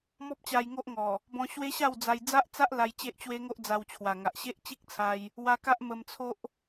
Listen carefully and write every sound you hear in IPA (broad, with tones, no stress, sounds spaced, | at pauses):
m ɔ˦ p̚ t͡ɕ a˧ j ŋ o˦ ʔ ŋ ɔ˨˩ | b ɔ̃˧ ɕ w e˦ ɕ a˥˧ w d͡z a˧ j d͡z a˦ ʔ t͡s a˦ ʔ l a˧ j t͡ɕ e˦ ʔ t͡ɕ w e˦ ŋ o˦ ʔ d͡z a˧ w t͡ɕʰ w a˨˩ ŋ a˨ ʔ ɕ e˦ ʔ t͡ɕ i˦ k̚ t͡sʰ a˧ j | w a˧ k a˦ ʔ m ə˧ m t͡sʰ o˦ ʔ